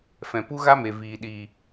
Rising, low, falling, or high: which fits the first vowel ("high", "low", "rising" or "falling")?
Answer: low